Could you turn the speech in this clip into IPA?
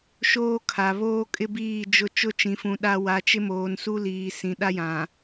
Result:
ʃoː˦kʰa˨βoː˦ kʼɪ˦biː˦˨d͡ʒʊ˦˨ t͡ʃʊ˦t͡ʃĩ˨fũ˨ ɗa˦ wa˨˦t͡ʃɪ˦moː˨nsu˦ liː˨ sĩ˨ɗa˦jã˨

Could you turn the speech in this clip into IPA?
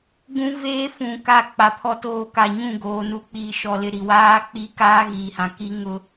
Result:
ɡũ˦veː˦ fũ˨ka˦˨k͡pa˨ pʰɔ˦toː˦ ka˨ɲũ˦˨ɡoː˨ nu˨ k͡piː˨ʃɔ˨lɪ˨ ɾi˨waː˦ k͡pi˦ kaː˦ɣiː˨hã˨ ki˦ŋʊ˦

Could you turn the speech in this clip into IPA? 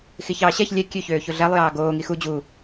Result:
xiçɑːɕɛç lʲɛ kʲøçøː çoɮɛlˠjɑː ɡoː ŋixu d͡ʑu

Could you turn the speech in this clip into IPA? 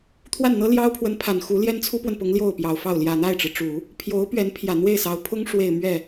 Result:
t̪ʰwa˥˩nn̪ɤ˥ljɑ˥ʊ̯pʰwə˧˥n pʰa˨˩nxu˧˥ ljɛ˥nt͡sʰu˥pwə˨npʊ˧˥ŋ ljo˥˩ʊ̯pjɑ˨˩ʊ̯fɑ˥˩ʊ̯ ljä˨˩n̪a˥˩ɪ̯ʈ͡ʂɻ̩˩ʈ͡ʂu˨˩˦ | pʰjo˧˥ʊ̯pɥɛ˧˥npʰjä˨˩ n̪we˥˩ɪ̯sɑ˧˥ʊ̯pʰʊ˥ŋ ʂwe˥˧ɪ̯mɥɛ˥˩

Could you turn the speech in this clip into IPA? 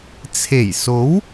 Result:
t͡sʰe˨˩jso˨˥w

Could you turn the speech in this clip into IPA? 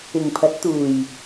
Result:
ɪ˨˩ŋpʰɐ˨˥t̚t̪uː˨˩j

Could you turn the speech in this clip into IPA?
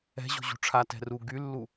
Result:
ɛ̤ʑo̤ ʑṳʈ͡ʂʰatɛ̤ ru ɡylːu

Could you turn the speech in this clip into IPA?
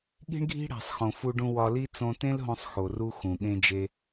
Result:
ɠi̤˦ɳɡʱi̤˦ ɽæ̤˨sˤxõ˨fu˧ɖũ˧ wɒ˧li˦ t͡sõ˧tẽ˦lɦõ˧sˤ xo˨ru˧ xũ˨ɠẽ˧d͡ʒe˧

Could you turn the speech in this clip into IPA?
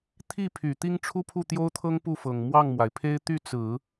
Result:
t̪ʰi˥˩pʰy˨˩ t̪i˥ŋʈ͡ʂʰu˥pʰu˥˩ t̪jo˥ʊ̯t̪ʰɤ˥ŋ pu˥˩fɤ˨˩ŋ mwɑ˥˩ŋmwa˩ɪ̯pʰe˥ɪ̯ t̪y˥˩t͡sɹ̩˨˩˦

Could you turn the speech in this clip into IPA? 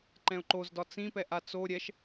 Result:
ǃɛ̃ʊ̯ǃozdɒ t͡sĩpɛ ʔat͡so ɾʲɛʃ

